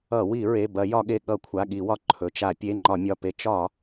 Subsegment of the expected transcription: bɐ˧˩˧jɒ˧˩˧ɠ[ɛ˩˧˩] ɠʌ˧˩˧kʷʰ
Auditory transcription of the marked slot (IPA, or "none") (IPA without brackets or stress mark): e˩˧˩